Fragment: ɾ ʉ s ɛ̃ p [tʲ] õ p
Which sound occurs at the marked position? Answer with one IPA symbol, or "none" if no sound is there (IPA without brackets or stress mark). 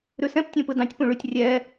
tʲ